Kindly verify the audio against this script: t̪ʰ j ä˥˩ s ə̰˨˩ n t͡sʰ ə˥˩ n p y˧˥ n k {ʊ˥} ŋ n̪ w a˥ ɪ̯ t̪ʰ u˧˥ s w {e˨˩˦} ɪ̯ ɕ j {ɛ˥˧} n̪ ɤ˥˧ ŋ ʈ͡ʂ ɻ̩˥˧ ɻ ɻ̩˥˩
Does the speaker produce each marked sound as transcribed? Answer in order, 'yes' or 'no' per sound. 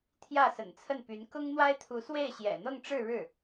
yes, no, no

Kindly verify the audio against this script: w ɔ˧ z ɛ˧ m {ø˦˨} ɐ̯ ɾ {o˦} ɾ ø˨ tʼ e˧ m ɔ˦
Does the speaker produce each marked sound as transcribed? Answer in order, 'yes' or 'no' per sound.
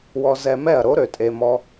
no, yes

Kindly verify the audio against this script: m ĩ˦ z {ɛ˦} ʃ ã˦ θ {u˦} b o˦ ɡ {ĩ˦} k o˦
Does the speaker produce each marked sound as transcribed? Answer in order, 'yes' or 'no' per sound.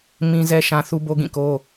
yes, yes, no

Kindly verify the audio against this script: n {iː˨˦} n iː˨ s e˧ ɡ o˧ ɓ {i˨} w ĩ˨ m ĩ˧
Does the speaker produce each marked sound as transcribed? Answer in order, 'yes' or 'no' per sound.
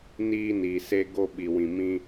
no, yes

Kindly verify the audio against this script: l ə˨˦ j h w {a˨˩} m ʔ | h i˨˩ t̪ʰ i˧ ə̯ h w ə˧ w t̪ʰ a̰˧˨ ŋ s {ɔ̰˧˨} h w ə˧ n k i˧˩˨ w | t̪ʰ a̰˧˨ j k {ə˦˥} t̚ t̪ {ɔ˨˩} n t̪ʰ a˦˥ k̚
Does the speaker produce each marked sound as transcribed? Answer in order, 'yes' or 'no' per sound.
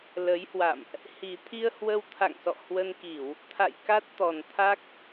no, yes, no, yes

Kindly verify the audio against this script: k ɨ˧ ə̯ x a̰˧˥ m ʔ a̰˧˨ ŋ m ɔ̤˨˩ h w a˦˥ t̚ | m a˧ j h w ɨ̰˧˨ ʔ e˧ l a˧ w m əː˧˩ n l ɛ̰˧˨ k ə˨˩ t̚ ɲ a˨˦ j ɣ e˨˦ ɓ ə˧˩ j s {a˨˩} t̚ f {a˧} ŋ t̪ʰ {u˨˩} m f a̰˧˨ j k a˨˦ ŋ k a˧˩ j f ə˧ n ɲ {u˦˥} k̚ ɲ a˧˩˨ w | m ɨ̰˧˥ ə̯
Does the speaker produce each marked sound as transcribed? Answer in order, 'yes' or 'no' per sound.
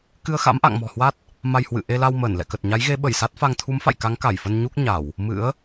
no, yes, no, yes

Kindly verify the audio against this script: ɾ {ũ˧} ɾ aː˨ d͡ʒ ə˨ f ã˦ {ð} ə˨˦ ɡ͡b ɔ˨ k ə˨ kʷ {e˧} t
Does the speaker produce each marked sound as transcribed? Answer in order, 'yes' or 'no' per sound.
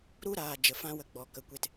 no, no, yes

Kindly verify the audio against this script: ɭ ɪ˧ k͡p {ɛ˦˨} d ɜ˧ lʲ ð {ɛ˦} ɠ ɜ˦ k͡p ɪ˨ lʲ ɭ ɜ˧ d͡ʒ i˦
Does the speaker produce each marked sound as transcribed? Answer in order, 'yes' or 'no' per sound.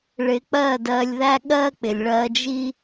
no, no

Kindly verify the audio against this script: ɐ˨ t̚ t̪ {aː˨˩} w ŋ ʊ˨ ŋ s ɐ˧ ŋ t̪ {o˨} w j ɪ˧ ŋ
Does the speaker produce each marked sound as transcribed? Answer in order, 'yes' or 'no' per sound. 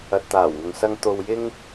yes, yes

